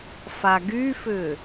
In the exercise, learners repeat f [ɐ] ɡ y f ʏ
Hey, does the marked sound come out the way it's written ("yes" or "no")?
no